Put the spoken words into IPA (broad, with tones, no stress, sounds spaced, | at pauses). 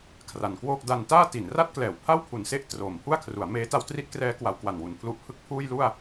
kʰ r a˩˦ n k w oː˥˩ k̚ d a˧ n t aː˥˩ t i˩˦ n r a˥˩ t̚ k l ɛː˨˩ w pʰ a˥˩ w pʰ u˩˦ n s e˦˥ ʔ t r oː˨˩ m pʰ u˥˩ a̯ kʰ r u˩˦ a̯ m eː˦˥ t a˦˥ w t r i˦˥ t̚ k r ɛː˦˥ k w a˩˦ w k w a˨˩ n w u˨˩ n pʰ l u˦˥ ʔ pʰ ɯ˥˩ k̚ pʰ uː˥˩ j l u˥˩ a̯